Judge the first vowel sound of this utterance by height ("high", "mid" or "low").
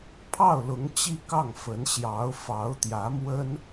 low